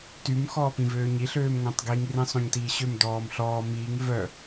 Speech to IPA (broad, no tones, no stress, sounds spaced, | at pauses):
t y m x ɔː p ĩ v øː ɲ i ɬ øː m ŋ õ tˤ ɡ i ŋ r ĩ sˤ õ ɲ t iː ɕ ø m d ɔː m ɬ ɔː m iː ŋ v œ